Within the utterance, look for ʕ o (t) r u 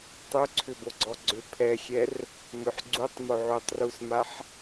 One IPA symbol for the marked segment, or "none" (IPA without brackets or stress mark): tˤ